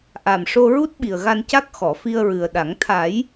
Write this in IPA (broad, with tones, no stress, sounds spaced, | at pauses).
ʔ a˨˩ m ʂ o˧ ɹ u˦˥ t̚ ɓ i˨˩ ə̯ ɣ a˧ n c a˦˥ k̚ x ɔ˨˩˨ f i˧ ə̯ ɹ ɨ˨˩ ə̯ ɗ a˨˩˦ ŋ t̪ʰ a˨˩˦ j